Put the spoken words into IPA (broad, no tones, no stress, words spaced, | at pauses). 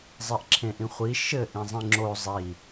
zˤiʔǁʰẽʔĩχʷi ʃɘ ʔĩzˤĩŋ͡ǁo zˤi